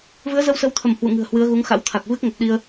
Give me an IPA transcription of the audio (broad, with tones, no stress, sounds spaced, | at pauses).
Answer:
v ɨ˨˦ ə̯ z ə˧ w s ə˨˦ w t̪ʰ ə˧˩ m h w ṵ˧˨ ŋ ɨ̤˨˩ ə̯ h w ɨ˨˦ ə̯ ɣ u˨˦ ŋ x a̰˧˥ w t̪ʰ a˨˩ k̚ v ɨ˦˥ k̚ ŋ ə˨˩ p̚ ɗ i˧ ə̯